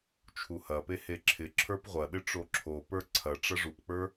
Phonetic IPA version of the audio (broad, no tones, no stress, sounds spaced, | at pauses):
t͡ʃʰ u h ɐ p e h e ǁʰ ɪ ǁʰ ə˞ p ʁʷ ɐ ɗ ɪ ʈ͡ʂ o ǁʰ o p ə˞ ǀʰ ɐ ʈ͡ʂ ɐ ʐ u p k͡p ə˞